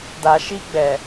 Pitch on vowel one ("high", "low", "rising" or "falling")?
low